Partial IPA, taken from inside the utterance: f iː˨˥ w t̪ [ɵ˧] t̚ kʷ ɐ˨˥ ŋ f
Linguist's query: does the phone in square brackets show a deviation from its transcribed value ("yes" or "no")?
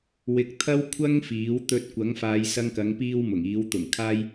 no